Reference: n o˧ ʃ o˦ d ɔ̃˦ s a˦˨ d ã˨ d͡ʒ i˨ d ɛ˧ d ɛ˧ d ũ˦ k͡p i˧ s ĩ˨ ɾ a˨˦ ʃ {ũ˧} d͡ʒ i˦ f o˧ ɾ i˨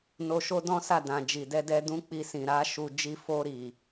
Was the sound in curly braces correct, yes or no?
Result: no